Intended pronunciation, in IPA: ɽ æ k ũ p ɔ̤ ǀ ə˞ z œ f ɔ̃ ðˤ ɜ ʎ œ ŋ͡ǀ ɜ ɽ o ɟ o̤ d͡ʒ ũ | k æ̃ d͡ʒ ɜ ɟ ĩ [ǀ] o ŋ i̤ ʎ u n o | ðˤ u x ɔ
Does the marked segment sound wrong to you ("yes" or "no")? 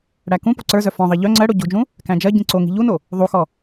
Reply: no